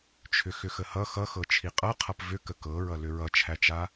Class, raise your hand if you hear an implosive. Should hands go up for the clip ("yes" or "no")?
no